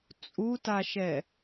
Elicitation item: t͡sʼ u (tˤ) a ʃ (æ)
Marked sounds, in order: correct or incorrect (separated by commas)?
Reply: incorrect, incorrect